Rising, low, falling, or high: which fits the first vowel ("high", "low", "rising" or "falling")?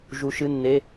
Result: rising